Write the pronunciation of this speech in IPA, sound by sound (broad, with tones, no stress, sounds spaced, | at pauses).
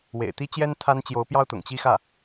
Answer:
w ḛ˨˩ ɪ̯ t̪ i˥ t͡ɕ j ɛ˥ n t̪ʰ a˥ n t͡ɕ j o˧˥ ʊ̯ p j ɑ˥ ʊ̯ t̪ ʊ̰˨˩ ŋ t͡ɕ i˥˧ x ä˥˩